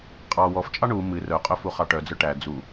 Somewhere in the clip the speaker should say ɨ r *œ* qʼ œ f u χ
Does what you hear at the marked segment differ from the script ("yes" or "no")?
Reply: no